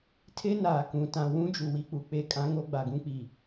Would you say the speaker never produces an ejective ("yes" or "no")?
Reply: no